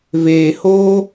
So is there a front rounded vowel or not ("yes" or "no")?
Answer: no